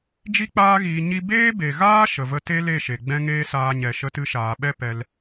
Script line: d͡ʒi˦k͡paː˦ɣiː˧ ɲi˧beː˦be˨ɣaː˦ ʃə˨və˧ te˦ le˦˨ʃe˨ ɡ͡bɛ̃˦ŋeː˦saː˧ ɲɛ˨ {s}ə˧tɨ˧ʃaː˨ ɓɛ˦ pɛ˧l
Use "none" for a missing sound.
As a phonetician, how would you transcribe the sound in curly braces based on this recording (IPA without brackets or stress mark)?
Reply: ʃ